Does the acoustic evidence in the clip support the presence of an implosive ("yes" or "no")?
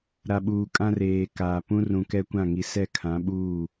yes